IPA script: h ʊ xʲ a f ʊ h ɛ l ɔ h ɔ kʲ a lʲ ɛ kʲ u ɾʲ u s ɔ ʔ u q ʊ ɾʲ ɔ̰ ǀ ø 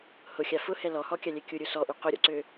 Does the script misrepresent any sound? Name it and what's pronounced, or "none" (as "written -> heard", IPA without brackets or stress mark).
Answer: none